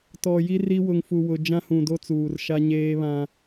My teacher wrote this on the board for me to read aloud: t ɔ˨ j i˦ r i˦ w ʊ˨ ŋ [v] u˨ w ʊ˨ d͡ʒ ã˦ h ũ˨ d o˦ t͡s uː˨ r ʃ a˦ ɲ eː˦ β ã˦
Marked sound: incorrect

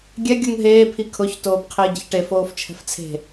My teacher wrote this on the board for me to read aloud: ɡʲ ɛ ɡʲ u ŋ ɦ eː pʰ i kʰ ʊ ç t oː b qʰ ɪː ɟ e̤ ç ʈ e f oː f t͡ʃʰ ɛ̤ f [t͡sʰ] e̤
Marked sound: correct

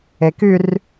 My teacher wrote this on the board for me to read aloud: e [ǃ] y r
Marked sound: incorrect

